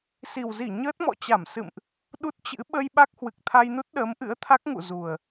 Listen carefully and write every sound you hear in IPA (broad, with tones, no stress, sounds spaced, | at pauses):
s i˨˩ w z i˧˩ ɲ əː˦˥ t̚ m ɔ̰˧˨ t͡ɕ a˧˩ m s ɨ̰˧˨ m ʔ | ɗ u˦˥ t̚ t͡ɕ ɨ̰˧˥ ɓ ə˧ j ɓ a˦˥ k̚ h w ɨ˨˩ k̚ t̪ʰ a˧ j n u˦˥ t̚ ɗ əː˨˦ m ʔ ɨ̰˧˥ ə̯ t̪ʰ a˦˥ k̚ ŋ ṵ˧˨ z u˨˩ ə̯